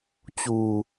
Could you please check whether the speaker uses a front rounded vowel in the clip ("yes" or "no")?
no